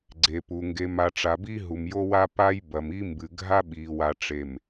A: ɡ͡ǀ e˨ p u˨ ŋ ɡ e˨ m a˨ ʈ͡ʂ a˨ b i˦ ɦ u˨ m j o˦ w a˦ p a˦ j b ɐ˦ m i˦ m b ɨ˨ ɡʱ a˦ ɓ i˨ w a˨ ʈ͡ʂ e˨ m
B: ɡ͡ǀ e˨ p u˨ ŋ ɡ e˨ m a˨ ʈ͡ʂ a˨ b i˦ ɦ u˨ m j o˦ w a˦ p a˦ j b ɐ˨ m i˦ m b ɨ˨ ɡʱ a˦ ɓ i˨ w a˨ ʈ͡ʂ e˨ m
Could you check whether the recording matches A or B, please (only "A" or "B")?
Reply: B